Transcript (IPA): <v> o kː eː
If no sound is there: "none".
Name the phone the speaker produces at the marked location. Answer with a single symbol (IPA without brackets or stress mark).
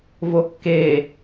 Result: v